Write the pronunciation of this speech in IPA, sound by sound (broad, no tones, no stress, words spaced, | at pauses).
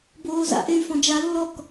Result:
boːza̰ʔey̯ fɔ̃d͡ʒalːɔk